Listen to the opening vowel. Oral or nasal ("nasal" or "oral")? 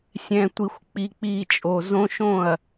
nasal